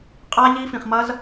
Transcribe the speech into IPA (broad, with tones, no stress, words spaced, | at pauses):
qʼa˦ʎi˦ fĩ˧χmɐ˦z